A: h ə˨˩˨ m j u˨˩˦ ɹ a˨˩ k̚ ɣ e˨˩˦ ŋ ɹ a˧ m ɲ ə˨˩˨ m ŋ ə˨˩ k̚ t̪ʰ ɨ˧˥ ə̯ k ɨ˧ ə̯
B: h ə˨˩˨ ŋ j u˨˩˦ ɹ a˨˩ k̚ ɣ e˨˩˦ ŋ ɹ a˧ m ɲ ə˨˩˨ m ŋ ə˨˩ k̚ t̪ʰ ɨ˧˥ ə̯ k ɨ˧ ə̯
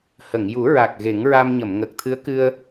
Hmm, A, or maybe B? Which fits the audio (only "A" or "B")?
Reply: B